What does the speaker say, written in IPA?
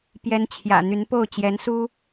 p j ɛ˧˥ n t͡ɕʰ j ä̰˨˩ n̪ y˧˥ n p o˥˩ ʊ̯ t͡ɕ j ɛ˧˥ n s u˥

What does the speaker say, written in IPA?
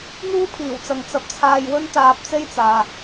n̪ uː˥ pʰ iː˨˩ w t͡s ɐ˨ ŋ t͡s ɐ˧ p̚ t͡sʰ aː˧ j w ɵ˥ n t̪ aː˧ p̚ t͡s e˥ j t͡s aː˨

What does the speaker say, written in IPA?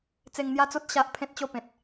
t͡s e˧ ŋ n̪ j a˦ t͡s o˦ t̚ ɕ a˦ ʔ pʰ ẽ˦ t̚ t͡ɕ o˥˧ p ẽ˨ t̚

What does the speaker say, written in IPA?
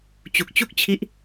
t͡ɕ u˨˩ k̚ t͡ɕ u˥˩ k̚ t͡ɕʰ i˦˥ ʔ

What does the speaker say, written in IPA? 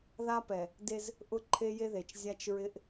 ð a˦ p ɛ˨ | d e˦ z | ʔ ʊ˦ ǃʰ e˦ j e˦ ð e˨ t͡ʃ zʲ a˦ t͡ʃ ɹ ɪ˦ ʔ

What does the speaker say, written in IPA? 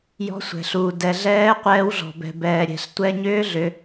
j ɔ̤˦˥ sʷ ɛ̤˨ ɬ uː˨ d ɛ˨ ɮ ɛː˦˥ qʷ ɛː˦˥ w ɮ ɔ̤˨ b ɛ̤˨ b ɛː˨ ɾʲ ɛ̤˨ ɬ tʷ ɛ˦˥ ɲ ʏː˦˥ ɮ ʏ˨

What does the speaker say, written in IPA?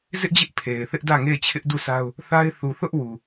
z ɪ˦ ʔ d͡ʑ ɪ˦ ʔ pʰ e˨ ɪ̯ θ ɪ˦ ʔ d ä˦˨ ŋ e˦˨ ɪ̯ t͡ɕʰ ɪ˦ ʔ d u˦˨ s a˦ ʊ̯ | θ a˦ ɪ̯ θ u˨ θ ʊ˦ ʔ w u˨

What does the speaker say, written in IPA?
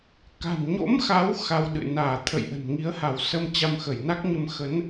k a̤˨˩ n ɲ o̰˧˥ m x a˨˦ w x a˧ w ɗ ɨ̰˧˨ n aː˧˩ t̪ʰ ə̰˧˨ j ʔ ə̤˨˩ n ŋ i˨˦ ə̯ h a˧˩ w s ə˧ m t͡ɕ a˧ m x ə˧˩ j n a˦˥ k̚ ɲ ə˧ m x ə˨˦ n

